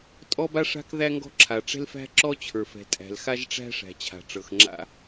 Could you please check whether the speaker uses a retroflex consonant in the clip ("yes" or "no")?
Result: yes